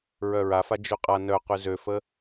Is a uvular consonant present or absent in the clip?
present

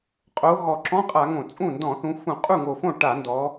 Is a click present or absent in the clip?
present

